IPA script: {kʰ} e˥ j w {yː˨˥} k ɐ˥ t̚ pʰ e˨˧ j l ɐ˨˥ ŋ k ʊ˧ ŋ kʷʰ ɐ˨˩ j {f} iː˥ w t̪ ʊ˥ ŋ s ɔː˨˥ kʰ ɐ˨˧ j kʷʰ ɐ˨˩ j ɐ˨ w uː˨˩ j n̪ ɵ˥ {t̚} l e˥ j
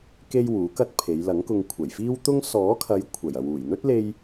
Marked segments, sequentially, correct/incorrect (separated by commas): incorrect, incorrect, correct, correct